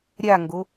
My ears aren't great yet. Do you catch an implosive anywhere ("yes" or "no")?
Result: no